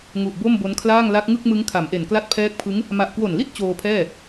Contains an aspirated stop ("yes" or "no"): yes